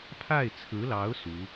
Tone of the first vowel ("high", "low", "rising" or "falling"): falling